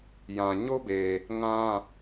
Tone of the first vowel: low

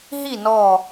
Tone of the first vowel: falling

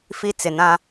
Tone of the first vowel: high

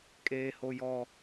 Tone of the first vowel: high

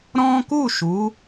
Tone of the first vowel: high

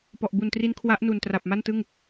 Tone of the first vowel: low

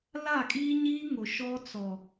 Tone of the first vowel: falling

